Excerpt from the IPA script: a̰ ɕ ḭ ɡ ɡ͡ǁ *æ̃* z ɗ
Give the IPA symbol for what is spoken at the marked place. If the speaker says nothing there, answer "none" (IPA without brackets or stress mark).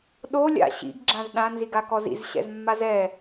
ã